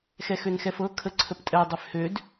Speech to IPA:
xɛxønxɛfɤ kʰəǀʰəptʼɛ dˤøfhød

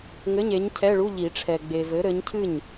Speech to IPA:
ŋɘ˧˥˧ɲe˨˥ɲcʰɛ˧˥˧ɭu˧˥˧ ʎi˨˩˦ʈ͡ʂʰɛ˨ ɡ͡be˨ vɘ˨˥ɾɘ˨˥ɲcʰɨ˥˩ɲ

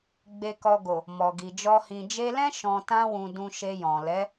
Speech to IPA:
ɡ͡be˨kɔ˨ɡo˨ | mɔ˨ɡi˨d͡ʒɔ˧ hĩ˨d͡ʒe˧lɛ̃˦ ʃɔ̃˧ tã˦wũ˧ dũ˧ʃe˧ jɔ̃˨lɛ˨˦

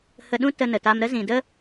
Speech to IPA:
hə˧ɗũ˦ tə˧nə˨ta˧m ɾə˦zĩ˨də˦

